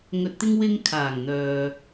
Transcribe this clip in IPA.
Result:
ŋ ɵ˨ t̚ t̪ ɪ˧ ŋ w ɪ˧ ŋ kʰ aː˨˩ ŋ n̪ œː˨

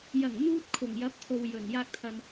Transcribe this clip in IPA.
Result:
j ɐ˨˩ ŋ n̪ uː˧ t̚ kʰ ʊ˨˩ ŋ j ɐ˨˥ p̚ t̪ʰ o˨ w j ɵ˨˩ n j aː˧ k̚ t̪ʰ ɐ˨ n

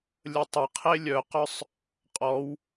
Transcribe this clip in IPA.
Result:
lʲ ə tˤ ə qʰ e lʲ œ q œ sˤ | qʼ ɔ w

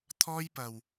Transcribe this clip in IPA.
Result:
t̪ʰ ɔː˧ j p ɐ˨ w

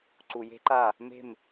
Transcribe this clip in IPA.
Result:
ǀ u˨ j e̤˦ ǃ a˦˨ | m e̤˦˨ m

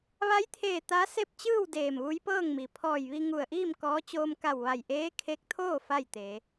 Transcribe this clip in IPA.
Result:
ʋ a˧˥ j t̪ʰ eː˧˩ t̪ a˧˥ s e˥˨ p̚ t͡ɕ ɯː˥˨ w d eː˧˩ m ʋ u˧˥ j p ɤː˥˨ ŋ m i˩ pʰ ɔː˧˩ j ʋ i˧ ŋ u˧˩ ə̯ ʔ iː˥˨ m k ɔː˧˥ t͡ɕ oː˧ m k a˧˩ w ʋ a˧˩ j ʔ eː˧˥ kʰ e˧˥ k̚ t̪ʰ oː˥˨ f a˥˨ j t̪ e˩˧

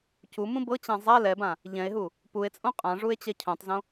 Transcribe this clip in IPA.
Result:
c u m ũ b ɤ t͡ɕ ã zˤ a l ɛ b ã | ʎ ɛ̃ e̯ ɦ u | p u e̯ t͡sʼ õ qʼ ã ʐ u e̯ t͡ɕ ɛ cʰ õ tˤ z õ

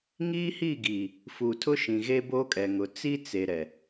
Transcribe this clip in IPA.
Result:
ŋ iː˦ h i˦˨ ɡ iː˨ | f uː˨ tʰ ʊ˦ ʃ ĩ˨ ɣ e˦ b oː˦ kʼ ɛ˨ ŋ ʊ˨ t͡s i˦ t͡s e˨ ɾ ɛ˨

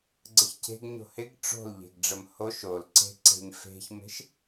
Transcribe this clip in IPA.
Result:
ɡ͡ǀ ə ç cʰ e̤ ɡ ɲ o̤ h ɪ ɡ ʈ͡ʂ o̤ l ʎ e̤ ɡ ɖ͡ʐ ə m h o ʃ o l ǀ e̤ ǀ e̤ ɲ f e̤ ç m e̤ ʃ

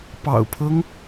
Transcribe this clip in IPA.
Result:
p ɑ̰˨˩ ʊ̯ pʰ ɤ˦ ŋ

